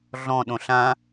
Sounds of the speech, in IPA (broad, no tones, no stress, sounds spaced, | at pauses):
ɮ ɔ̃ ɗ õ ɬ ã